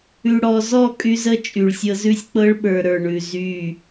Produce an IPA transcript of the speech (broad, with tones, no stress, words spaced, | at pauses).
ʉ˨ɽɔ˨zɔ˦˨ kʼy˦zə˦t͡ʃʼy˨ɭsʲɤ˦ zʉ˦sʲk͡pɤ˦ɭɓə˞˨ ɾə˞˨ɳʉ˨ zy˦˨